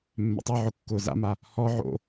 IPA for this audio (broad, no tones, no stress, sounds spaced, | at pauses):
mː ɛ̰ tˤ y ʕ ʊ kː ʊː z a̰ m a | h ɔ ʕ o̰